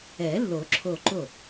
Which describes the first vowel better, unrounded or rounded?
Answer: unrounded